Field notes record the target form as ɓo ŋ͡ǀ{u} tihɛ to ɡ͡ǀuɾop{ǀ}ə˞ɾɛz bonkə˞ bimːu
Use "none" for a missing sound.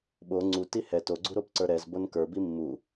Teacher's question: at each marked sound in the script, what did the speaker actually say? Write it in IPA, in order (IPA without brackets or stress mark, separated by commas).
u, ǀ